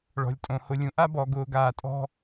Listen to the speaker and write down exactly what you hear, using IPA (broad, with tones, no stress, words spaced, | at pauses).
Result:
ɭɔ̤˨lʲtʼõ˨ hʊ˨lʲũ˨ʔa˦bɔː˨ ɡʊː˨ɡaː˨ tʼɔ̤˦